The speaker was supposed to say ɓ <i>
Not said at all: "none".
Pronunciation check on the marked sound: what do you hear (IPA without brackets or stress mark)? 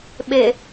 e